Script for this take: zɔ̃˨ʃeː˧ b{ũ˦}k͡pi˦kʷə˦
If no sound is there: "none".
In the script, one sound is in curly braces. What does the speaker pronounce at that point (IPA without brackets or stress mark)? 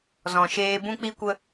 ũ˦